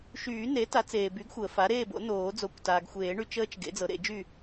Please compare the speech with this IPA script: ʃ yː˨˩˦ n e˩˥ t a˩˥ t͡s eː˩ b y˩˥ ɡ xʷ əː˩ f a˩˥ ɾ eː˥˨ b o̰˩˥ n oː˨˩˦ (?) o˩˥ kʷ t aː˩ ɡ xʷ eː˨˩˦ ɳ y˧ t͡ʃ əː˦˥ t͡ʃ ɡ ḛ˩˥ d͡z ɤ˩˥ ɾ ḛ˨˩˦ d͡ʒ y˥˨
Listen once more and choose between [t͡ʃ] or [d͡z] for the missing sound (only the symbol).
d͡z